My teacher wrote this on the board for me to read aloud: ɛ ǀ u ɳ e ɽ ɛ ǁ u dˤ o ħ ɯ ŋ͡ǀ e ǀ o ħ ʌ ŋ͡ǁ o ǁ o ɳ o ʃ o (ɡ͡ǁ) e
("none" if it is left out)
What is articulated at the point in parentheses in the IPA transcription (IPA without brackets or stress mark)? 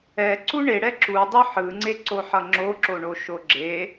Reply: ɡ͡ǁ